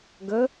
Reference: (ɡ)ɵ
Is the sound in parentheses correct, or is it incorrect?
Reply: correct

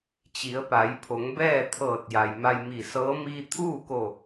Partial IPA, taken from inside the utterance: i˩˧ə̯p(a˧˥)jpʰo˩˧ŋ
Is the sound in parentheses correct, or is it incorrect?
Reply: incorrect: a˩˧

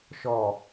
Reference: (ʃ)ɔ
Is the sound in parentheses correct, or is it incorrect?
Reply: correct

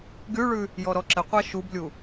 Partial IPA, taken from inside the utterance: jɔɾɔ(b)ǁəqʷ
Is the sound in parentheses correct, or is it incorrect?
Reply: incorrect: none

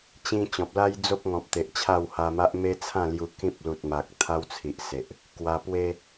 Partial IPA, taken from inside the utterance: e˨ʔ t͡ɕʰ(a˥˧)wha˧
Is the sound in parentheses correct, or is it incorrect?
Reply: correct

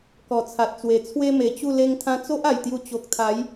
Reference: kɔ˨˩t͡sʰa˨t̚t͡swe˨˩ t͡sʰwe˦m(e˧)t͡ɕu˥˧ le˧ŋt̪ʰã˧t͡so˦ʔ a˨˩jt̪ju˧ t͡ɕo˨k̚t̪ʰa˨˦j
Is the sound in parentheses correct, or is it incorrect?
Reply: incorrect: e˨˩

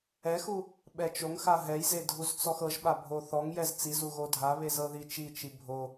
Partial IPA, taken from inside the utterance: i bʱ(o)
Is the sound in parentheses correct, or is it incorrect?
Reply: correct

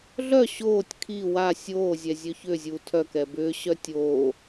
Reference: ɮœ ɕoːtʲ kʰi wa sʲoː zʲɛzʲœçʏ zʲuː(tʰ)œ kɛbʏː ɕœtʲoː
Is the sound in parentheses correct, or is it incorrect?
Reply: correct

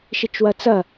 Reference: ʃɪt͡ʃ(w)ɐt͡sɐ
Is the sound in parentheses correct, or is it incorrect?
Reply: correct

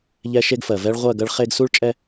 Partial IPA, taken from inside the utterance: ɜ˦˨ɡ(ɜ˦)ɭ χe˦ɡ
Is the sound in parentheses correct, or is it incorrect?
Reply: correct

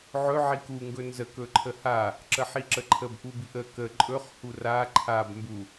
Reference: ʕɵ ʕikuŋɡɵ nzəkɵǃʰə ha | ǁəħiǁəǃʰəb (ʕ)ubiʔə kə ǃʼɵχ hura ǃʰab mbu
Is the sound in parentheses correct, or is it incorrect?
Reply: incorrect: ʔ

